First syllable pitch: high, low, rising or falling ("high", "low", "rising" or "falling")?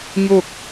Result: falling